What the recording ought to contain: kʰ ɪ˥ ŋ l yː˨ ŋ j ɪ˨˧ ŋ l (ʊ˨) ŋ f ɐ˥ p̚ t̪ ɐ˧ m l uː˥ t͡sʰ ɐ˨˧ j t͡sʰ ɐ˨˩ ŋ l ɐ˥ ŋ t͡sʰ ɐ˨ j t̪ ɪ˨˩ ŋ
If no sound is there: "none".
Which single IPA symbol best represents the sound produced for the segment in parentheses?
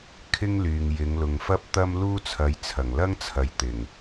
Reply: ʊ˨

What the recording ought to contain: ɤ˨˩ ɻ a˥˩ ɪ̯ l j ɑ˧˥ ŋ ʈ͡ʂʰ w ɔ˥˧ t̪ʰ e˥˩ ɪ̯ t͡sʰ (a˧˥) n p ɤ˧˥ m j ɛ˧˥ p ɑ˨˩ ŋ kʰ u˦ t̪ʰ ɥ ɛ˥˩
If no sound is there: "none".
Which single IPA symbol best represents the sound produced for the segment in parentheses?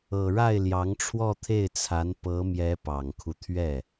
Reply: a˧˥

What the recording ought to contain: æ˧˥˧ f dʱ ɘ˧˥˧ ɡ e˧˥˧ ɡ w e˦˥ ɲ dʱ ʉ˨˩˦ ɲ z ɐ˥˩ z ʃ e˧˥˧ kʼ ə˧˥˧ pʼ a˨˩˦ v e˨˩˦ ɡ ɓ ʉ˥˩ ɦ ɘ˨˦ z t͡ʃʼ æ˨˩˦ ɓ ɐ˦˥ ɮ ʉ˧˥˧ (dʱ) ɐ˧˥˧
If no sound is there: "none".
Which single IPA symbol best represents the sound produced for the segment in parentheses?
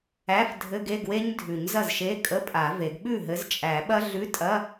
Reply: tʼ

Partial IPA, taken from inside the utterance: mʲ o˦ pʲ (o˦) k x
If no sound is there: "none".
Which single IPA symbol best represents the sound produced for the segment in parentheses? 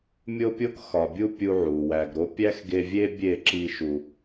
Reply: o˦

